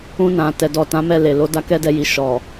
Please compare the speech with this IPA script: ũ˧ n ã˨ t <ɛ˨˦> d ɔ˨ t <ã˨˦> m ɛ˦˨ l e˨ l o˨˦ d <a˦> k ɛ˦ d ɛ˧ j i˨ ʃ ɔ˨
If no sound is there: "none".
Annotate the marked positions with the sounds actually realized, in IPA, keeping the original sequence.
ɛ˨, ã˨˦, a˦

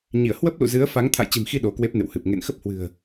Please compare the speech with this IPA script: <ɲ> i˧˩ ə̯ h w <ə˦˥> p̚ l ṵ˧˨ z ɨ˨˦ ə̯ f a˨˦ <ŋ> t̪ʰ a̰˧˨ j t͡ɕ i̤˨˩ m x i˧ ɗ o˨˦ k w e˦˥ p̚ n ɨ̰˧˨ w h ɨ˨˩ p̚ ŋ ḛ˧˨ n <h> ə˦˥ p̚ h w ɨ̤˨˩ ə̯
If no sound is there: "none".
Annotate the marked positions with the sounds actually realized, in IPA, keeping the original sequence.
ɲ, ə˦˥, ŋ, x

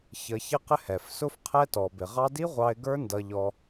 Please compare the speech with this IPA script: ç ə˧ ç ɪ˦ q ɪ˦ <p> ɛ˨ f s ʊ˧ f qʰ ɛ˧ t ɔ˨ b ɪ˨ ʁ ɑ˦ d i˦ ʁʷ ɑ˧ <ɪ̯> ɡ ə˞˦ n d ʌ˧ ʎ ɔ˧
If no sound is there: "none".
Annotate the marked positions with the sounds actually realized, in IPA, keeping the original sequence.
h, ɪ̯

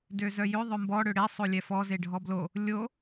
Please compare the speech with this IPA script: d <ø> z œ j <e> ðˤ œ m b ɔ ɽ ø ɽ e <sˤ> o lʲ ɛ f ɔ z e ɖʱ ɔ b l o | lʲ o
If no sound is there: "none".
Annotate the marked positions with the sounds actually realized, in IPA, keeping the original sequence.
ø, ø, sˤ

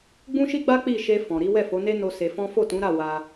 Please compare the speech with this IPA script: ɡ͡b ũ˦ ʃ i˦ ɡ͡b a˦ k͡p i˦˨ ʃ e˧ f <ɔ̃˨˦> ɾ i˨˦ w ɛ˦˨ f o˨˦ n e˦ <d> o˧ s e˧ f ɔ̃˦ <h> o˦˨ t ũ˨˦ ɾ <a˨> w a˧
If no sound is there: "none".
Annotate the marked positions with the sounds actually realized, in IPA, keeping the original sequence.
ɔ̃˨, n, f, a˦˨

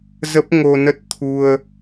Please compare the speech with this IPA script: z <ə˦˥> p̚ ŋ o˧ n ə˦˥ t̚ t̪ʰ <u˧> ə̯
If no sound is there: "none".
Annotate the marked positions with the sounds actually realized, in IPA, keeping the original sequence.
ə˦˥, u˧

